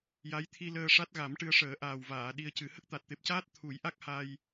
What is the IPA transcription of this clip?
j a˧˥ j t̪ʰ i˧ l əː˧ ʂ a˦˥ t̚ ɣ a˨˩˦ m ʈ ɨ˧ ə̯ ʂ əː˨˩˦ ʔ aː˨˩ w v aː˨˩˨ ɗ i˧ ə̯ c ɨ˨˩˦ h ə˦˥ k̚ t̪ a˨˩ t̚ t̪ e˨˩ p̚ c aː˦˥ t̚ t̪ʰ u˨˩˦ j ʔ a˦˥ k̚ h a˧ j

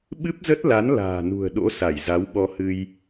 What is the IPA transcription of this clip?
ɓ ɨ˦˥ p̚ z ə˦˥ t̚ l a˨˦ n l a̤ː˨˩ n ṳ˨˩ ə̯ ɗ o̰˧˥ s a˧˩ j z a˨˦ w ɓ ɔ˧ h ɨ˧ j

